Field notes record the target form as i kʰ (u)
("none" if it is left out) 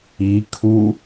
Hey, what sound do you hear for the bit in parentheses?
u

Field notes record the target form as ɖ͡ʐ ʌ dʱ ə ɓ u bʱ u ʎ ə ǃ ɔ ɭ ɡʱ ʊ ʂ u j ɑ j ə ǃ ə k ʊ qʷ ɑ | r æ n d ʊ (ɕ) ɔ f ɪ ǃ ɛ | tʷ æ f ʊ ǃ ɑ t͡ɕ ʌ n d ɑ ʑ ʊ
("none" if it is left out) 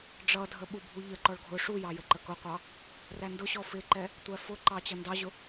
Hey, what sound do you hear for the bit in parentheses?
ɕ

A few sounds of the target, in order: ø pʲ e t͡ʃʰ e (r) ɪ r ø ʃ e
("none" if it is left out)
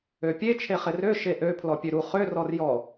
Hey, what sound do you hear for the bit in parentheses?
χ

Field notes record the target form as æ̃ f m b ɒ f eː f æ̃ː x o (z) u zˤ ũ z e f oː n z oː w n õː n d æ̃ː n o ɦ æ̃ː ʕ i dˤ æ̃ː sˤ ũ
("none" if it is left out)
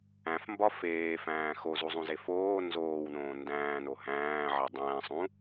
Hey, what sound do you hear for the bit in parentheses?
z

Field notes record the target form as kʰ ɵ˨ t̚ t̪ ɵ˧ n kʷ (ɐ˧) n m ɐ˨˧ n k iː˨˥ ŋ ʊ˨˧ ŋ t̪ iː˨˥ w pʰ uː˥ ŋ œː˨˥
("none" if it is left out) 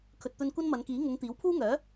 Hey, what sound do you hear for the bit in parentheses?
ɐ˥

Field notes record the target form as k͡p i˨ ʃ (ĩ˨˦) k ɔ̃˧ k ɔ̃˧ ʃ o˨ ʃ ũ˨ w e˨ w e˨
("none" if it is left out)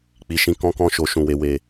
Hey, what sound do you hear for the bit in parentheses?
ĩ˨˦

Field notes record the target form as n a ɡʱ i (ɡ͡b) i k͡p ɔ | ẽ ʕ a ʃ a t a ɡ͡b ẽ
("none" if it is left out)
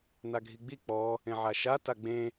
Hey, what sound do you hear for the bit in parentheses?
ɡ͡b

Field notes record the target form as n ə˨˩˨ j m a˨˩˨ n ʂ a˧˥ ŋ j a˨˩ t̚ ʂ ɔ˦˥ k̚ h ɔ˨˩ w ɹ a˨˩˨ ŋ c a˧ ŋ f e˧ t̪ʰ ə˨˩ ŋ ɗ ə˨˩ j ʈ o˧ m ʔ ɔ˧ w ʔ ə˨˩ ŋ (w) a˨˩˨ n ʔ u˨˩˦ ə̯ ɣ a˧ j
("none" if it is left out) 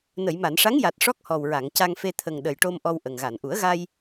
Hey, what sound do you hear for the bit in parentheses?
ɣ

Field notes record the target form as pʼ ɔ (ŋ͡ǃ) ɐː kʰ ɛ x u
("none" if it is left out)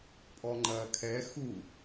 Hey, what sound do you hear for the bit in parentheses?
ŋ͡ǃ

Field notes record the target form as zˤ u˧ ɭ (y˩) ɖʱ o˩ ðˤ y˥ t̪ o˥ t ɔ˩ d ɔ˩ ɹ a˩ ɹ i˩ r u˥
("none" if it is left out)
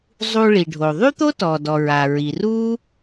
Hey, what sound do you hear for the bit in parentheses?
i˩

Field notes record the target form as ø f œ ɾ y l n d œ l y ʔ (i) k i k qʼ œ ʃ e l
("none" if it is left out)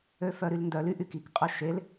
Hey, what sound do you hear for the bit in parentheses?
y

